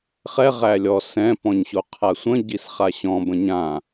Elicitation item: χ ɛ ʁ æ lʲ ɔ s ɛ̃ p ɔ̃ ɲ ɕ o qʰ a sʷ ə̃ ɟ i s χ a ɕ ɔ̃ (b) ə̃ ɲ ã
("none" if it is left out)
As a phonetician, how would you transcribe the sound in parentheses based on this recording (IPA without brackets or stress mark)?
b